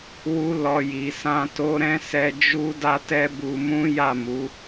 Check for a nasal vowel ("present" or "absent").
present